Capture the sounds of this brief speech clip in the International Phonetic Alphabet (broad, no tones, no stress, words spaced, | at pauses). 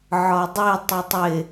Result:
ʕɒdˤe tˤɤtˤɪ